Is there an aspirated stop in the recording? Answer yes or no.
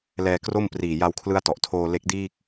yes